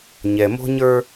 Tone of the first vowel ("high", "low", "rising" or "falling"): low